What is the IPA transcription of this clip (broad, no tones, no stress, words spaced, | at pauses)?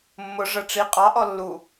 mːʊ ʐə ʈ͡ʂi qʼɑʔɔ lːu